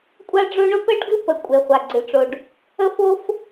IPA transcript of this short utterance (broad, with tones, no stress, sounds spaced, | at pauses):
kʷʼ a˥ ɖ͡ʐ o˥ ɳ o˥ p ə˥ ɖ ɡ ɨ˥ p ə˩ kʷʼ e˩ χʷ a˩ ɡ͡ǀ ɨ˩ ʈ͡ʂ o˩ ɖ | ə˥ f o˥ f